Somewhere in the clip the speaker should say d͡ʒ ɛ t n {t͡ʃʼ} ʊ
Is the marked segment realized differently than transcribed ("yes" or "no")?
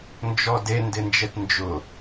yes